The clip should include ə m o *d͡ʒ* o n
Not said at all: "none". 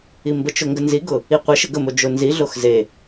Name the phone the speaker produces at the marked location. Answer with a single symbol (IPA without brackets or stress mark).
d͡ʒ